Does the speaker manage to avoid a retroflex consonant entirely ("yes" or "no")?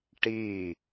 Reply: no